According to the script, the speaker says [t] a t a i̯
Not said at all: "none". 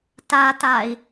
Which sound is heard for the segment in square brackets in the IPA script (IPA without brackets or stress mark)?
t